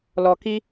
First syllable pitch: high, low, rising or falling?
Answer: low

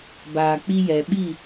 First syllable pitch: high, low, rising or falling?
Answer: low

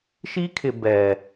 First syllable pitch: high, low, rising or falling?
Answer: high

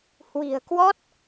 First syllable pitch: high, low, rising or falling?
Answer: low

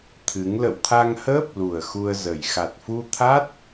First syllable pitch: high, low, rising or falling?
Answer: rising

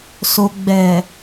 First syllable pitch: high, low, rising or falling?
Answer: low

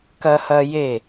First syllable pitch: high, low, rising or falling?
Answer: high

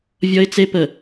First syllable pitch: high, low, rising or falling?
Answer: high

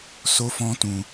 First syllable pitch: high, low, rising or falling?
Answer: high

